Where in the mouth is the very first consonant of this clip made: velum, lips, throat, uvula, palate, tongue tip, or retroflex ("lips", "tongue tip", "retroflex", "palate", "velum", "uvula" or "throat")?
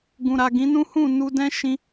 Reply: velum